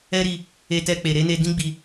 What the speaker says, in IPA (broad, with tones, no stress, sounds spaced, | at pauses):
ɛ˦ ɾ i˧ | e˧ t ɛ˧ k͡p e˨ ɾ e˨˦ n e˧ d ĩ˦ ɡ͡b i˧